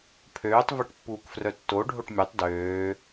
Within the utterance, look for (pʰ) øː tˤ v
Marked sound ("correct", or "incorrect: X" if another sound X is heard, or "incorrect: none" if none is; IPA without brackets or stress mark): correct